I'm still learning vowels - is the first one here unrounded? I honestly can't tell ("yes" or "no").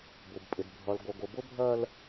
no